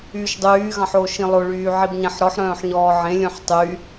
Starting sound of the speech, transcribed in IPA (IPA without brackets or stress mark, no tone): yː